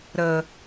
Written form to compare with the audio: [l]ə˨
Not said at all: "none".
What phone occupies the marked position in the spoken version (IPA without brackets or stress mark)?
ɾ